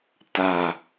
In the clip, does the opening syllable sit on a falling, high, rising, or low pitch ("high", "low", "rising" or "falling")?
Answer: low